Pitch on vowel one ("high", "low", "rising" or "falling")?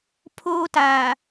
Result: high